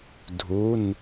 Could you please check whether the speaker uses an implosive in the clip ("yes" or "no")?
no